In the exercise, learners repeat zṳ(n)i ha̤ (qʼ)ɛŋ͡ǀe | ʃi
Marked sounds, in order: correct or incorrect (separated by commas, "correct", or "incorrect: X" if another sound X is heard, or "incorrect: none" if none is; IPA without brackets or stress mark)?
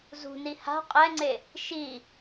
correct, correct